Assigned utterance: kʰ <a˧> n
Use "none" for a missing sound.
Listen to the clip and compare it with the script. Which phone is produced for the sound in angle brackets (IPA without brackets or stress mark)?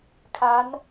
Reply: a˧˥